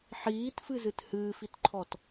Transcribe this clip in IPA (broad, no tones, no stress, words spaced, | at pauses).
ħiːtfɨzɨt hɨːfitǃʰɔt